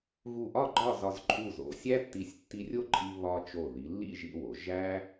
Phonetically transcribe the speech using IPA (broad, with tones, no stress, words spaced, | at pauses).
ɣu˧˩ʔɒ˥˧ ɡ͡ǃɒ˥˧zɒ˧z ǃʼu˧˩zo̰˩˧sʲæ˥tːi˧˩sʲ tːi˧rʲo˥˧ǃʼi˧ βɒ˧ t͡ʃo˧˩ ði˩˧lːḭ˥˧ʒḭ˧ wo˩˧ʒæ˥